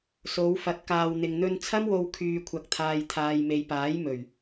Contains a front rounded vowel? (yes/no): yes